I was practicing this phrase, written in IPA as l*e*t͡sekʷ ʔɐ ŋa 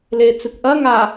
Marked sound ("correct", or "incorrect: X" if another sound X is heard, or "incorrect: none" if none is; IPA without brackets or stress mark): correct